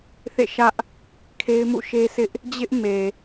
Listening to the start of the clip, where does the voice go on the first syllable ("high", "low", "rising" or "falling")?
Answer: falling